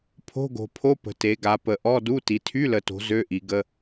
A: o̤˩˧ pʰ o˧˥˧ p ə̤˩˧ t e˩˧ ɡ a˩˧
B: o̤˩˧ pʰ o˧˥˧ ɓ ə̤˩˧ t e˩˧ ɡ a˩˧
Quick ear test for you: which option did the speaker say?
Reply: A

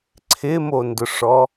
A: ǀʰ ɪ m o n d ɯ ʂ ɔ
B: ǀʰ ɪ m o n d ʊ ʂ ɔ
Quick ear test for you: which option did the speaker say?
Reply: B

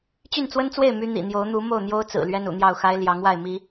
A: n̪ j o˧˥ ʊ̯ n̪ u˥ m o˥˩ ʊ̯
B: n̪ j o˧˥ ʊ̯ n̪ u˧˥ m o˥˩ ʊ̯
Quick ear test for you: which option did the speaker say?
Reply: B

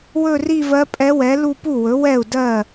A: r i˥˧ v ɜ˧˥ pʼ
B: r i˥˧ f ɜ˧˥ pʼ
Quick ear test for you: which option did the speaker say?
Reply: A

